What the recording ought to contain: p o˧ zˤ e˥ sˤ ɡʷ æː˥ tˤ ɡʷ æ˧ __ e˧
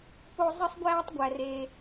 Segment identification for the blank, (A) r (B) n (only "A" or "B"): A